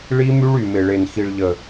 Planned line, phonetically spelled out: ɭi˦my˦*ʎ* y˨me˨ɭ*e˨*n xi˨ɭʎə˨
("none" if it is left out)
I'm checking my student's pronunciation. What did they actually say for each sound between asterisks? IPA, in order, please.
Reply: ɭ, e˨

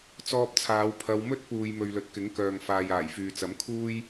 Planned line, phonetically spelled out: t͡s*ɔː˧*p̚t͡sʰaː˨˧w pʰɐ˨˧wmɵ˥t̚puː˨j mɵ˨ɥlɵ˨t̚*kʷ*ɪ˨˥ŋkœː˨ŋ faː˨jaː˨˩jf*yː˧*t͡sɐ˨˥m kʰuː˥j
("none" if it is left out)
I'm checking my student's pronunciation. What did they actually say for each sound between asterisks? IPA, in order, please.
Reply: ɔː˧, k, yː˨

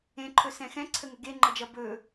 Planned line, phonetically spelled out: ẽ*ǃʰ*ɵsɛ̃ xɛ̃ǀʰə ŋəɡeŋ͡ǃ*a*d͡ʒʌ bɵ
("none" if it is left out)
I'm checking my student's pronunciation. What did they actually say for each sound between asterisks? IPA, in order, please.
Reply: ǃʰ, ʌ

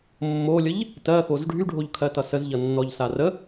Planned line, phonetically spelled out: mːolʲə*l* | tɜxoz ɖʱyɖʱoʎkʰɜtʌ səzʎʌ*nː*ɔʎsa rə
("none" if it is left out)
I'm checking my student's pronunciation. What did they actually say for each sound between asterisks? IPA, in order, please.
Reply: ʎ, nː

